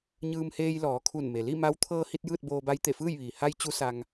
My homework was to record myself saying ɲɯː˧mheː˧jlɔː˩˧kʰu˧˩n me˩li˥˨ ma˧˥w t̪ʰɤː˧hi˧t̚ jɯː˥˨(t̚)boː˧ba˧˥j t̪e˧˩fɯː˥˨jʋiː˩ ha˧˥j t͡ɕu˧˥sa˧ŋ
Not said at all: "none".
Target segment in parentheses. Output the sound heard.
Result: t̚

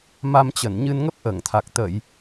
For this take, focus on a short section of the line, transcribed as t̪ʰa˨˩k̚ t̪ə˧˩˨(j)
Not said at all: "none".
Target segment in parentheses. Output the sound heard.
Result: j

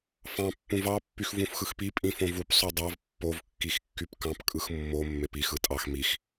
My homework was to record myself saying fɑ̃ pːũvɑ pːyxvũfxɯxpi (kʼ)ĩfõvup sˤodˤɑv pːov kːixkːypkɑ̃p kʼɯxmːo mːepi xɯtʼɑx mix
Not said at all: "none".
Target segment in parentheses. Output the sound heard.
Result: pʼ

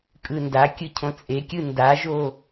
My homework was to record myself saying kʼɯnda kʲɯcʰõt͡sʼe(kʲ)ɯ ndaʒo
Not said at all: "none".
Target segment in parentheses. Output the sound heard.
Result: kʲ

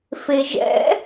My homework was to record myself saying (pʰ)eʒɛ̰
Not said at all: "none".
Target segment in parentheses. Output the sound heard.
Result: f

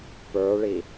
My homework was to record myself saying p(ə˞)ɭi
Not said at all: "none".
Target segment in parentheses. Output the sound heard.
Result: ə˞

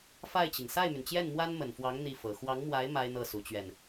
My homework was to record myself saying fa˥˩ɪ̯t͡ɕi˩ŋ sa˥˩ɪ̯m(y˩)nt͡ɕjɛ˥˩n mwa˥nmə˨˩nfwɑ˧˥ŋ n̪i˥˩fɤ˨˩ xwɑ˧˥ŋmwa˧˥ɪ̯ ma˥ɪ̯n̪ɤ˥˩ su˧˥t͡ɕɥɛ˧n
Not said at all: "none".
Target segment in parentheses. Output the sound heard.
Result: y˩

